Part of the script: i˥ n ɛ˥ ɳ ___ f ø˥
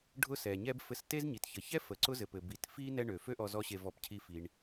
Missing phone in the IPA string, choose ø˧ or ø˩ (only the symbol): ø˩